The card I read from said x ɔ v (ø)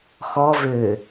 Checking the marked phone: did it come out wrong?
no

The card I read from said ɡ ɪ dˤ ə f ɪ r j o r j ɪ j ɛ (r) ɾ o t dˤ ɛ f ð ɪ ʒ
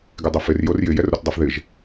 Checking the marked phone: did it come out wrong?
no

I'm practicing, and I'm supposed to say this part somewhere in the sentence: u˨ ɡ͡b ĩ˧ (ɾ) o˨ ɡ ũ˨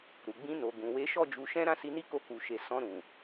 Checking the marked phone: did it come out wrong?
yes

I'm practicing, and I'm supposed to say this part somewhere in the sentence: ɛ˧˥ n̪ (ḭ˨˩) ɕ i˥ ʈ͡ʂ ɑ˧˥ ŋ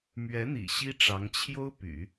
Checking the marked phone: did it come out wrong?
no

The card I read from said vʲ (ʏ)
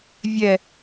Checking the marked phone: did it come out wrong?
yes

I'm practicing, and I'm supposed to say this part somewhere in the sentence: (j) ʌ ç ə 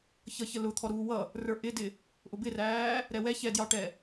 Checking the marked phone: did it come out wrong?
yes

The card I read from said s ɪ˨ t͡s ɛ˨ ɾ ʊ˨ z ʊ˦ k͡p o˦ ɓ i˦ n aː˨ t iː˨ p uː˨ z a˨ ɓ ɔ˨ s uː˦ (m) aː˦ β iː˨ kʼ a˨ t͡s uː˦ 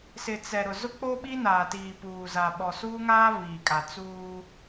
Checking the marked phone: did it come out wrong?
yes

